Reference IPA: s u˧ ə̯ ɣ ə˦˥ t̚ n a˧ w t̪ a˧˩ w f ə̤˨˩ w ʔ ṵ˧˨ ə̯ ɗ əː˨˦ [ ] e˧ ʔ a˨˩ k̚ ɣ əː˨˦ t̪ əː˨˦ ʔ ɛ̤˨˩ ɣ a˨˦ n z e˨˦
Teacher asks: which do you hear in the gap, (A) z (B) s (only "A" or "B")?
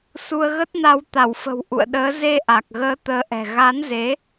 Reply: A